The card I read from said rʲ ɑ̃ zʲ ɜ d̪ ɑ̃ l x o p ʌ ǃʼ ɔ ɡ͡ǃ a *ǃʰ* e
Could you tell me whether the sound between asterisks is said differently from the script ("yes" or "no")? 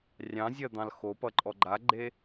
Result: yes